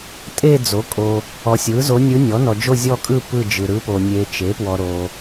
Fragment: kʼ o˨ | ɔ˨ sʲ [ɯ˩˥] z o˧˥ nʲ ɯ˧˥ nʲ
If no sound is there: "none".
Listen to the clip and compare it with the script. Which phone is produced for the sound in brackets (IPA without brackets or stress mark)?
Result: ɯ˩˥